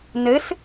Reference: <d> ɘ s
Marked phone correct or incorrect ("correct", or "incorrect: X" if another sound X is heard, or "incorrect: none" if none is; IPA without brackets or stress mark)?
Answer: incorrect: n